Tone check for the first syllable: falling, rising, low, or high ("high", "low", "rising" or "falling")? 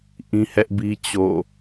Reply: high